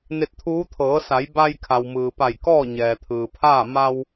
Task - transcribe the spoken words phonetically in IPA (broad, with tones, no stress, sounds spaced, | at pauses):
n e˧ t̚ t̪ʰ uː˧˥ t̪ʰ ɤː˩˧ s a˩˧ j b a˧ j kʰ a˩ w m ɯː˩ p a˧˩ j k ɔː˥˨ ɲ ɛː˩ t̪ʰ ɯː˩ pʰ aː˥˨ m a˧ w